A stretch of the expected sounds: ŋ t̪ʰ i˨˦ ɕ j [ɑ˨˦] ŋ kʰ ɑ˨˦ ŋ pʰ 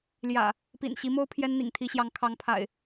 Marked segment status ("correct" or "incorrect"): correct